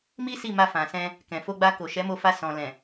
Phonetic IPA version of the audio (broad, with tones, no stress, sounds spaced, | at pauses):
m i˦ s i˦˨ m a˧ f ã˨ s ɛ̃˧ | k ɛ̃˨ f o˧ ɡ͡b a˧ k o˨ ʃ ɛ˨˦ m o˧ f a˧ s ɔ̃˨ l ɛ̃˨